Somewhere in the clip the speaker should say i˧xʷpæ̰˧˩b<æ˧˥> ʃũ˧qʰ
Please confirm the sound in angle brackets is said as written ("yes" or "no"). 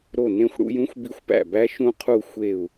yes